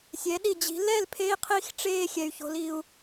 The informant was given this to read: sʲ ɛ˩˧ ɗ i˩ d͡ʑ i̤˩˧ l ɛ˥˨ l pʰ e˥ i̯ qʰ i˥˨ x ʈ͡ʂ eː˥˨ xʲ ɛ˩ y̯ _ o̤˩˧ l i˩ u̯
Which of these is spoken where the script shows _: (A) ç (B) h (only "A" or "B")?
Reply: A